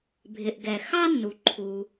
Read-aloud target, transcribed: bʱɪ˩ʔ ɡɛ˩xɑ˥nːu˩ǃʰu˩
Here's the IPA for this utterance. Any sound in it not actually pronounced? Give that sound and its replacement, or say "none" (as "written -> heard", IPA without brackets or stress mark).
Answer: none